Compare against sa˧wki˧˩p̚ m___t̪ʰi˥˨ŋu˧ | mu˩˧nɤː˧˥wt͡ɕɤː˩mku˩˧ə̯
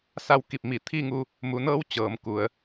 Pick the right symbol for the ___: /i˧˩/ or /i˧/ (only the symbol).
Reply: i˧˩